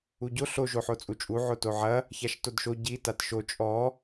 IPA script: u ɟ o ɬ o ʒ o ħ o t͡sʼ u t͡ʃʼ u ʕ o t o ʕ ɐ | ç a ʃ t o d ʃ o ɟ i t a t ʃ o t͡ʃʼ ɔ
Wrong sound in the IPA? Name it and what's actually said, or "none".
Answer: none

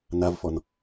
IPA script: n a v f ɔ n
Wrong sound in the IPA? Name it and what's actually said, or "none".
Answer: none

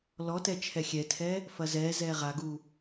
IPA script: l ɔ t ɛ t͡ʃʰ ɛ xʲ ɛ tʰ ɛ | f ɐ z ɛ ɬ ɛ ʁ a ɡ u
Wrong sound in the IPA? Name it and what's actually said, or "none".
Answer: ɬ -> z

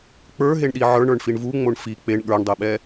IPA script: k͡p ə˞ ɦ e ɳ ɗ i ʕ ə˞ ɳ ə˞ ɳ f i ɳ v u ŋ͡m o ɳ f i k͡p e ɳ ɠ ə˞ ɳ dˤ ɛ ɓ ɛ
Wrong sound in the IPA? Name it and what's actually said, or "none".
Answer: none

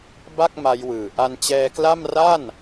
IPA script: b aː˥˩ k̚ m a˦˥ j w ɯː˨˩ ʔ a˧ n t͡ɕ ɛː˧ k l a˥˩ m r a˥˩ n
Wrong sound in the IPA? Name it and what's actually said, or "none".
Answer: aː˥˩ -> a˥˩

